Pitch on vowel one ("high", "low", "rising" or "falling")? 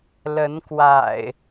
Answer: rising